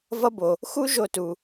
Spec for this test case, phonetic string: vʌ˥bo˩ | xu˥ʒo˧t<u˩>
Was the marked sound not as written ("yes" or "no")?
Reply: no